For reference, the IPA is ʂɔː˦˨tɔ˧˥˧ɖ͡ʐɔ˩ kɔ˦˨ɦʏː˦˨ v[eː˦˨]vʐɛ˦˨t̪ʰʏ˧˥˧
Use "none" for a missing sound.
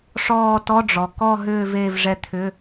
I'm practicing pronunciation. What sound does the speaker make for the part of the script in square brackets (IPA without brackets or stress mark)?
eː˦˨